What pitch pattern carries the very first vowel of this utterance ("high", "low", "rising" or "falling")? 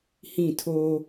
falling